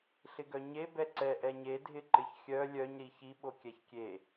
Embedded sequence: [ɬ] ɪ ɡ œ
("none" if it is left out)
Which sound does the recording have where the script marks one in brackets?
ɬ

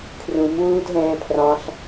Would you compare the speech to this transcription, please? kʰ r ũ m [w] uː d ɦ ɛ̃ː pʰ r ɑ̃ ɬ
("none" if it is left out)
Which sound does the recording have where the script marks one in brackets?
w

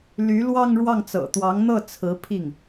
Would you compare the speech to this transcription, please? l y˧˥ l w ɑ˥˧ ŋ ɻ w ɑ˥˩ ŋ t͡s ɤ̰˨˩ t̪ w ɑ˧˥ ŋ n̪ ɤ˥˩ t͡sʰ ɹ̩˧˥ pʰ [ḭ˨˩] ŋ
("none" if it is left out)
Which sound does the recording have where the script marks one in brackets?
i˥˩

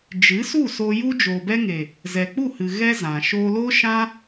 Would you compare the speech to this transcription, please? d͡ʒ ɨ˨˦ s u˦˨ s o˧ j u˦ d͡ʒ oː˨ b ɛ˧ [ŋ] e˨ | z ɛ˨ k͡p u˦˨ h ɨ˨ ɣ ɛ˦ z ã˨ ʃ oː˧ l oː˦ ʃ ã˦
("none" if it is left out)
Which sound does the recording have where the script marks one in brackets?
ŋ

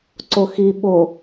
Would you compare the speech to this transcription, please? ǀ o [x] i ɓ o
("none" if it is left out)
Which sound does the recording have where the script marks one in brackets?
x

